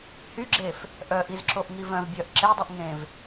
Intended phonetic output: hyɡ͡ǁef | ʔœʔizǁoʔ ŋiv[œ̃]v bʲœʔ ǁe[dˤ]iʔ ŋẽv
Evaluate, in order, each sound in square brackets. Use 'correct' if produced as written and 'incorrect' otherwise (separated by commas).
correct, correct